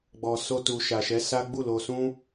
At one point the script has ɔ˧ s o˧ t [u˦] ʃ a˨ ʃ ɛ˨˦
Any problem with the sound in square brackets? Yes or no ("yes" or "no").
yes